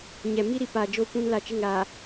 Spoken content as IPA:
ɲ ɛ˨ m i˦ ɾ i˨ p aː˨ d͡ʒ o˦ kʷ ũ˦ n l a˦ t͡ʃ ɪ˦˨ ŋ ɾ aː˨

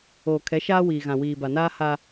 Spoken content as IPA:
oː˨ kʰ ɛ˨˦ ʃ aː˦ w iː˨ ɣ ã˨ w iː˨ b a˨ n aː˦ h a˦

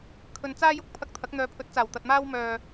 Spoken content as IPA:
kʰ ɵ˨ n t͡s aː˥ j ʊ˥ k̚ pʰ ɐ˧ k̚ t̪ʰ ɐ˨˥ k̚ n̪ œː˨ pʰ ɵ˨˥ t̚ t͡s aː˨˩ w t̪ ɐ˨ t̚ m aː˥ w m œː˧

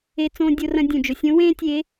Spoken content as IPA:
e˧ t͡s õː˧ dʲ o˧ r ɐ̃˧ dʲ ũ˩ d͡ʒ o˩ sʲ õ˧˥ w ẽː˥ tʲ e˧˥

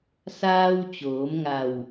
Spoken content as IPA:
s aː˧ w t͡ɕ oː˩˧ m ŋ a˧˩ w

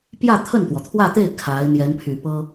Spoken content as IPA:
p j ä˥˧ t̪ʰ ə˥˩ n t̪ w ɔ˩ t̪ʰ w ä˥˧ t̪ e˥˩ ɪ̯ kʰ a˧˥ ɪ̯ n̪ j ɛ˧˥ n pʰ y˨˩ p ɤ˥

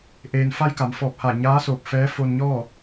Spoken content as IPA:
ʔ eː˩ n f a˧ j k a˩˧ m f ɔː˧˩ p̚ h a˧˩ ɲ aː˧˥ s oː˧˩ p̚ f ɛː˧˥ f o˧ n ɲ ɔː˥˨

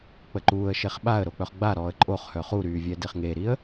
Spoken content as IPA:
k͡p ə ǃ uː ə̯ ʃ e χ ɓ a ə̯ ɾ o k͡p œ χ ɡ͡b a ɾ ɔː ə̯ ǃʼ o χ h œ χ u ɾ yː vʲ ɛ d e χ ŋ e ɾ i ə̯

